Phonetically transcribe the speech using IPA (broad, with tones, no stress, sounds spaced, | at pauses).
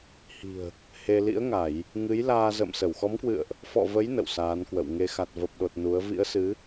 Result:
h i̤˨˩ ə̯ | h e˧ l ḭ˧˥ ə̯ ŋ a˧˩˨ j | ŋ ɨ˨˦ j l aː˧ z ə̰ː˧˨ m s ə˧˩ w x ɔ˨˦ m k w ɨ̰˧˨ ə̯ ʔ | f ɔ̰˧˨ v ə˨˦ j n ə̰˧˨ w s aː˨˦ n k w ə̰˧˨ w ŋ e˨˦ x a˨˩ t̚ v ə˨˩ p̚ ɗ o˨˩ t̚ n u˨˦ ə̯ v ḭ˧˥ ə̯ s ɨ˨˦